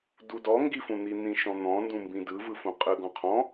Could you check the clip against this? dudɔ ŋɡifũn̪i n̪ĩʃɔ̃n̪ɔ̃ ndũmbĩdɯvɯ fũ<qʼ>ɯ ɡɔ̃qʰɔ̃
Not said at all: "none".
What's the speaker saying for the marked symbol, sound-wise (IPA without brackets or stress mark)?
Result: qʼ